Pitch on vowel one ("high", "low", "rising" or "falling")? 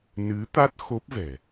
rising